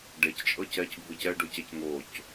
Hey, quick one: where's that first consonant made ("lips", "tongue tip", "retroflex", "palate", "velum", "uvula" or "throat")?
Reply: retroflex